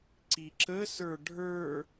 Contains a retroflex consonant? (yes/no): yes